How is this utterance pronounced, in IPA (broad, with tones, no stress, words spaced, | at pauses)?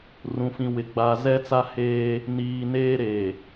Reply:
rũ˨fĩ˨ wɪ˨ ɡ͡ba˨zɛ˦t͡sa˦heː˦ | niː˨neː˦ ɾe˨